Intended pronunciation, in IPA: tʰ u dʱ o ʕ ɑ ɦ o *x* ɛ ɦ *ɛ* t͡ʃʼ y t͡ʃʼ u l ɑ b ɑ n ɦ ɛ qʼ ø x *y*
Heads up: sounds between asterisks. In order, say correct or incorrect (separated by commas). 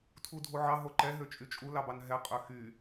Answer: incorrect, incorrect, correct